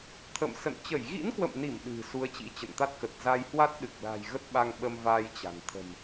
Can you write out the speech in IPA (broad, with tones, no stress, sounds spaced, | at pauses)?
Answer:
t̪ʰ ə̰˧˨ m s ə̰˧˨ n t͡ɕ ə˧˩ j ɣ ḭ˧˥ n k w ə̰˧˨ m n i˧˩ m ɗ ɨ̤˨˩ s u˨˦ ə̯ t͡ɕ ḭ˧˥ t͡ɕ ə̰˧˨ n t̪ a˦˥ t̚ k ə˨˩ t̚ z a˧ j h w a˦˥ t̚ ɗ ɨ˨˩ k̚ l a̤˨˩ j ɣ ə˦˥ t̚ ɓ a˧ ŋ ɓ ə˧ m v a˧ j t͡ɕ a̤˨˩ n t̪ʰ ə̤˨˩ m